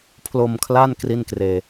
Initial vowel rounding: rounded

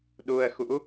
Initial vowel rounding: rounded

